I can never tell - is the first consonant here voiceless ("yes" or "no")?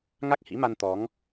no